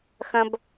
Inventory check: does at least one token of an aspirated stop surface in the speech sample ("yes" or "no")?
no